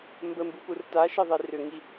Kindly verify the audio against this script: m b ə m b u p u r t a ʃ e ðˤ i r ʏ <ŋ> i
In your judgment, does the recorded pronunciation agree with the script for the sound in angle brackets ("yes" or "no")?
yes